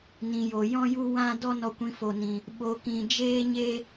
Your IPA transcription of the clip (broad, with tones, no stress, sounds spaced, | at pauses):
n ĩ˨ j o˨ j ɔ̃˦ j u˦ w ã˦ d ɔ˦ n ɔ˧ kʷ ĩ˧ f o˧ n ĩ˧ | ɓ o˧ k ĩ˧ d͡ʒ eː˦ ɲ eː˦